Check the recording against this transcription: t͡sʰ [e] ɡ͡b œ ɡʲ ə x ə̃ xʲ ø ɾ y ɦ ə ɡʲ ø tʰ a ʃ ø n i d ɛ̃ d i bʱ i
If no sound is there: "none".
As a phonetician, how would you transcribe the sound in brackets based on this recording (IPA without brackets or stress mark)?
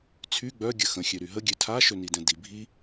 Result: y